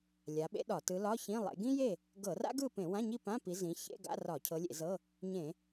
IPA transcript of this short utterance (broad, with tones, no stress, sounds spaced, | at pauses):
lʲ a˨˦ ɓ ḛ˥ ɗ ɒ˧˩˧ t ɯ˨˦ l ɒ˧˥˧ ç ĩ˧˥˧ lˠ ḛ˨˦ ɡ ĩ˥ j e˥˨ | ɡ ɤ˧˩˧ r a̰˥ ɡ ɯ˥˨ p ẽ˧˩˧ w ã˧˥˧ ɲ i˥˨ p ã˧˥˧ p i˨˦ z ĩ˨˦ ç ḛ˧˥˧ ɡ a̰˧˥˧ r ɒ˧˩˧ cʰ ɤ˨˦ lʲ ḛ˧˩˧ z ɤ˧˥˧ | ɲ ẽ˧˩˧